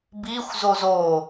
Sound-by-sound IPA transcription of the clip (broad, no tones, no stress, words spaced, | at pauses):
bixʷzoz o